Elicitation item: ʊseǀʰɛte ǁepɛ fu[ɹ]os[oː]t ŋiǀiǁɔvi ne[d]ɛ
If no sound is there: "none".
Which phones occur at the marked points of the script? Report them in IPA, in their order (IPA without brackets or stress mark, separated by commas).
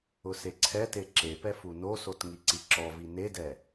n, o, d